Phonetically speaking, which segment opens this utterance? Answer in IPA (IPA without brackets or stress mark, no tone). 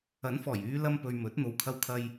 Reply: ɐ